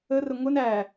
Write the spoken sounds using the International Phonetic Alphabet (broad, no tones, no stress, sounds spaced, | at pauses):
ə r ə ŋʷ ɪ n æ